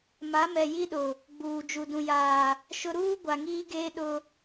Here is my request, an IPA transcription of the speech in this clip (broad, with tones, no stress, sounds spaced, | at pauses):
m a˨˦ m ɛ˨ j i˦ ɗ ʊ˨ | ɡ͡b uː˨ d͡ʒ u˨ d ũ˨ j aː˨ | ʃ ʊ˦ ɾ uː˦ ɡʷ a˨ ŋ iː˦ ɡ eː˦ ɗ ʊ˦